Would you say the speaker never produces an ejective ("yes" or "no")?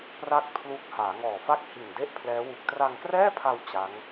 yes